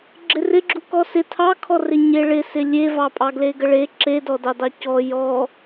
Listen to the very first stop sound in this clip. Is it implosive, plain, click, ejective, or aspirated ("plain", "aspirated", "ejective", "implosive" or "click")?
click